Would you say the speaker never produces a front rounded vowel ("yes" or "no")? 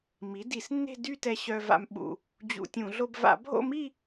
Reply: no